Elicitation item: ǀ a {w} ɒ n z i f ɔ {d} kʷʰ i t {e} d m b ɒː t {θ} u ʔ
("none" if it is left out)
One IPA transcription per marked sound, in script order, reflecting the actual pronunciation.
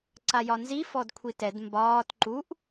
j, d, ɛ, ǃ

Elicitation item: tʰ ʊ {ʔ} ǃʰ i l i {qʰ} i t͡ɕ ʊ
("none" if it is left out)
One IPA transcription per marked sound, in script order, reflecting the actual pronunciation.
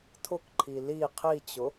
k, qʰ

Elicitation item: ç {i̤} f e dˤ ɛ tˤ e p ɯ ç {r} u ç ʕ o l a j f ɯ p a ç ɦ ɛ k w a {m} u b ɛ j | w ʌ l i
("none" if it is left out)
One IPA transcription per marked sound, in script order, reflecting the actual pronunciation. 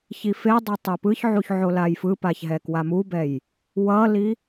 i, ʕ, m

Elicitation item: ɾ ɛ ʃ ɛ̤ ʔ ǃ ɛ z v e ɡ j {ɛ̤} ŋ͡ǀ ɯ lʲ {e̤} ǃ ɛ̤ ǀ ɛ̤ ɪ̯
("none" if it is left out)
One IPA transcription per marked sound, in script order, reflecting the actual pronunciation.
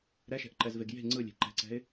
e̤, e̤

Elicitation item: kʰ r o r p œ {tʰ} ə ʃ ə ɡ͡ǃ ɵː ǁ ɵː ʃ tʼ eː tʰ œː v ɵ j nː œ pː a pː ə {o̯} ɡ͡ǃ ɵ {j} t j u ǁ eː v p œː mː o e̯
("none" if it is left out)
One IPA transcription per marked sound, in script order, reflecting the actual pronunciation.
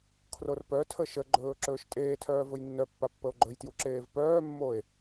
tʰ, o̯, j

